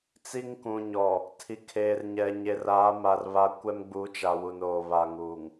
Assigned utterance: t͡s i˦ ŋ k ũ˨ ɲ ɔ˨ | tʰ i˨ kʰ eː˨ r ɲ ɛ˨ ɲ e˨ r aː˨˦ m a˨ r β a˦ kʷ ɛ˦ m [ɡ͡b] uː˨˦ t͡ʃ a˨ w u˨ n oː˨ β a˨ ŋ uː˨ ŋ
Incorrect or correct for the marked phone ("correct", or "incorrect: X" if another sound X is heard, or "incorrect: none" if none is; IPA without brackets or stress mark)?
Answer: correct